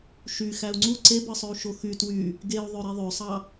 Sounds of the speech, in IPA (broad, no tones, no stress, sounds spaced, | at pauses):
ʃ y x æ u̯ ŋ͡ǀ u ǀ e b ɯ sˤ ø u̯ ʃ o x y t w y | ɡ e u̯ ðˤ ø ɾ i ðˤ ø sˤ ɑ